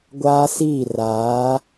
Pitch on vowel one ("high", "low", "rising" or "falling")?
high